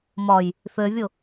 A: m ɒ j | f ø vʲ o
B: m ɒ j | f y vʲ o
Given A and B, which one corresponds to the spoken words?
A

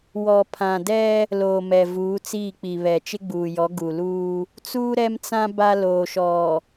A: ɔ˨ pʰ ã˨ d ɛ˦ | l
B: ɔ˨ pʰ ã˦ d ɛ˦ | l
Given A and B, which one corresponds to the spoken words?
A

